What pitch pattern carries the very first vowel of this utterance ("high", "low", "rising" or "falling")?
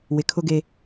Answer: low